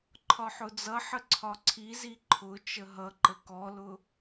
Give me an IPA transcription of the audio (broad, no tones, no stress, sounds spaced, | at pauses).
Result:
ǃʰ ɒ ħ ʊ d͡z ʌ ħ ə ǀʰ ɒ ǀʰ i z i ǃʰ ʊ t͡ʃ ə ɦ ʌ ǃ ə k ɔ l ʊ